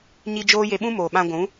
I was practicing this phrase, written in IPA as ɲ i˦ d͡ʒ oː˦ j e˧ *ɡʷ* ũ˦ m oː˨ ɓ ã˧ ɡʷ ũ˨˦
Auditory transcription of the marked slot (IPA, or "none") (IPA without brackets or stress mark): ɓ